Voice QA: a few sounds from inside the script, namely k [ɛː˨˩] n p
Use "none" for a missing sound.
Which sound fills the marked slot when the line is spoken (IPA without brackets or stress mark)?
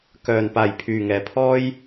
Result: œː˨˩